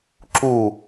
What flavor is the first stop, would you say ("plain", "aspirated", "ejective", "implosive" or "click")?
click